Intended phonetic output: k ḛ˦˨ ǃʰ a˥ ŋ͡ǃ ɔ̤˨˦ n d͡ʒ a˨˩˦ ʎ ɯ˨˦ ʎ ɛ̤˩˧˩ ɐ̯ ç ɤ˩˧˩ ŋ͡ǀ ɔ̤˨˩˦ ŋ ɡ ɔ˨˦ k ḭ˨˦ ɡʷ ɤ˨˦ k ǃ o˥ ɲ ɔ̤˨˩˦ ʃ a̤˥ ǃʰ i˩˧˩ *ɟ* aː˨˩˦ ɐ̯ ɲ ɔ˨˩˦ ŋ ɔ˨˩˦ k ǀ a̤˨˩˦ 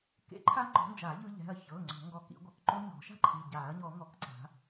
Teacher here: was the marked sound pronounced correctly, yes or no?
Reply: yes